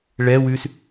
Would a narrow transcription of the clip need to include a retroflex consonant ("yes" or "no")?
yes